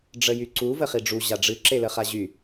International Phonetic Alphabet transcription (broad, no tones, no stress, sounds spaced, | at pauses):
ɖ͡ʐ ə j y ǀ u v ə χ i ɖ͡ʐ u ʑ a ɖ͡ʐ ɨ ǁ e l ə χ a ʑ y